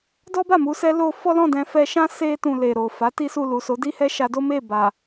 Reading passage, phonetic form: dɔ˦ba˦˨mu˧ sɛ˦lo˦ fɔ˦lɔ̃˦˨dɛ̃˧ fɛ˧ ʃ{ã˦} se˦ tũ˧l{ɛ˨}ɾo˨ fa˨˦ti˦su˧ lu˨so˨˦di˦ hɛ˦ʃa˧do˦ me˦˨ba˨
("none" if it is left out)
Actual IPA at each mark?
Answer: ã˦, e˨

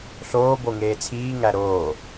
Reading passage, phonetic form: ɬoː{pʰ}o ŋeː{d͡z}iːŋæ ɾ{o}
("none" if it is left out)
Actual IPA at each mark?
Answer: b, t͡sʰ, oː

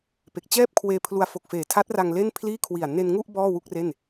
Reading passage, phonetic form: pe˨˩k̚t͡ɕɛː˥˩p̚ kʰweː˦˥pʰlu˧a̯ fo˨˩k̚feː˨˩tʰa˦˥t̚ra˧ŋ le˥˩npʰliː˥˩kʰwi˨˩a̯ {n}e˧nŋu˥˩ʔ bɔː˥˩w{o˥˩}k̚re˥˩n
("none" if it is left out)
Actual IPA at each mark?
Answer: n, u˥˩

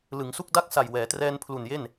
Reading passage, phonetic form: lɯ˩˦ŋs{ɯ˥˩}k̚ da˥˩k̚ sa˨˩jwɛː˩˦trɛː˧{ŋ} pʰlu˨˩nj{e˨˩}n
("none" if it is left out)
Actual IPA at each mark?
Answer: u˥˩, n, e˥˩

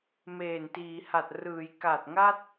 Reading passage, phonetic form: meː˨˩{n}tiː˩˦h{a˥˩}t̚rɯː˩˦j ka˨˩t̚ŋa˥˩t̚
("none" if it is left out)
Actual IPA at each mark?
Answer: n, a˨˩

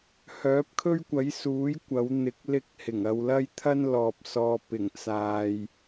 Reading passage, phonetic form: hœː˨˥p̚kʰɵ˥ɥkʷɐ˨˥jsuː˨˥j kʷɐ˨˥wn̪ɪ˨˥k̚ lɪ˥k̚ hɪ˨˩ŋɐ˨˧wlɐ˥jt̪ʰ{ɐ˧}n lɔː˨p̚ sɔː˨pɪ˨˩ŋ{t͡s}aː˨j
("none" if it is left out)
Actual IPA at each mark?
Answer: ɐ˥, t͡s

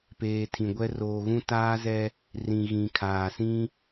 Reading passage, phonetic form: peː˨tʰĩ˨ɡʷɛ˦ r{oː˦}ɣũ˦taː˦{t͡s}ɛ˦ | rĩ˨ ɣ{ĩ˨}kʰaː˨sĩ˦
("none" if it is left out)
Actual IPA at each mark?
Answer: oː˨, z, ĩ˨

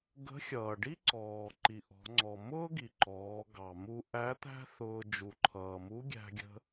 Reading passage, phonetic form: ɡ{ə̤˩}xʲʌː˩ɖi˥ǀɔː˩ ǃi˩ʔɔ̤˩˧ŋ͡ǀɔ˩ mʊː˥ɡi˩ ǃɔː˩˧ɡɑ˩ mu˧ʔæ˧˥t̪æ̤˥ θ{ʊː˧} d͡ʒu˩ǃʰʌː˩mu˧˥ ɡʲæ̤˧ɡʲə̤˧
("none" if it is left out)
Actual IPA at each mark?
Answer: ə̤˧˥, ʊː˧

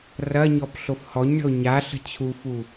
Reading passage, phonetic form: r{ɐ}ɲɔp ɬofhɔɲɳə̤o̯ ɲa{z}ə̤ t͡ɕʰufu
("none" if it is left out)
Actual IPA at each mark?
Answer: ɐ, ɬ

